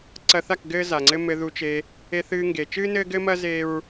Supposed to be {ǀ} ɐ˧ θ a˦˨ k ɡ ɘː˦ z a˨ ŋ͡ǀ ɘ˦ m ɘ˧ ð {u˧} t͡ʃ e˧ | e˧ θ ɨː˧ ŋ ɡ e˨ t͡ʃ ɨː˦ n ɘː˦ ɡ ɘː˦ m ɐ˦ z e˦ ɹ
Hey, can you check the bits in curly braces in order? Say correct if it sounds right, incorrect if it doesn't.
correct, correct

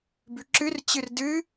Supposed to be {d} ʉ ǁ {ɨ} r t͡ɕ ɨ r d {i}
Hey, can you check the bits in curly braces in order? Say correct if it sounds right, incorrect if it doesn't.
incorrect, correct, incorrect

